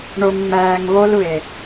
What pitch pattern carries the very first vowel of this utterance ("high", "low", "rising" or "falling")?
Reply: low